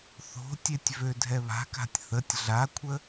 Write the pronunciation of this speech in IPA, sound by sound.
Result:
θo̤tʲetʲ vødʱɛβa̤ka̤tʲ θətʲ ɮakʷʰə

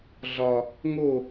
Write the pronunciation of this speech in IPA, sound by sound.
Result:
ɮɒ | ŋo

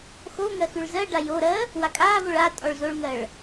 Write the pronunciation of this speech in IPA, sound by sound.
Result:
xo ŋɜxʉɭzɜɖa joɾɜ | wakʼaːvoɭ a tʼɔɭzoɭŋɜɭ

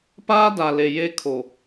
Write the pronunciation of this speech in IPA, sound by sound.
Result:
paː˦da˨le˨ je˦kʰo˨

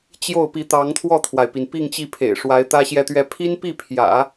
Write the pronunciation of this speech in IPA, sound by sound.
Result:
t͡ɕjo˥˩ʊ̯pi˧˥ t̪ɑ˧˥ŋt̪ʰwɔ˥˩t̪ʰwa˩ɪ̯pi˩n pi˥˧ŋt͡ɕi˥˩pʰḛ˨˩ɪ̯ ʂwa˧˥ɪ̯t̪ä˥ɕjɛ˥˧t̪ɥɛ˥˩ pʰi˥npi˥˩pʰjä̰˨˩˦

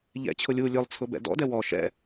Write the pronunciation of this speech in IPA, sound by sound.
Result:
ʎɛ̰t͡ɕʰʊ lʲu lʲʊlˠt͡sʰʊ bɛ̰dɔ̰dɛ wɔ ʃɛ̰

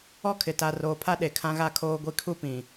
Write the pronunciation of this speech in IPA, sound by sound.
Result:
ɔ˦kʰɪ˨ta˨ roː˨pʰa˦ ɗe˨kʰã˦ɣa˦ kʰoː˦ɡʷi˦ kʰu˦pĩ˨

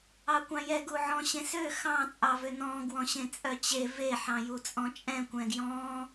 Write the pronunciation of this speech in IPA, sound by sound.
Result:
ɑkʷɑ̃jɛ ɡuʕɔ̃ɕẽsø xɑ̃ t͡sʼɑvønɔ̃ ɡwɔ̃ɕẽt͡sʼœt͡ɕe ve ħɑ̃jut͡sʼɔ̃t͡ʃʼɛ̃ kʷɛ̃ɡjɔ̃

